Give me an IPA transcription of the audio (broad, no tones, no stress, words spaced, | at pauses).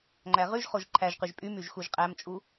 ŋ͡ǃæʁyʒχoʒ ǃʰæʒqyʒ pʼymyʒ xuʒqʼæmt͡ʃʼu